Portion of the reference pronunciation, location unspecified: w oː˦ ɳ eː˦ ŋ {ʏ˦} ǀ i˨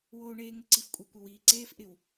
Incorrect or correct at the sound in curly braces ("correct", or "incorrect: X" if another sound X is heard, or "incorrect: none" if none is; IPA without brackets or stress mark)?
incorrect: ɪ˦